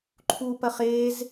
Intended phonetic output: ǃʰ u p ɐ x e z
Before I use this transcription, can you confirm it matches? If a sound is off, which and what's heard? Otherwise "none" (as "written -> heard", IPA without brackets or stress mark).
x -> χ